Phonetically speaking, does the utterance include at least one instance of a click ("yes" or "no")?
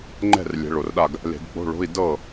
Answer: yes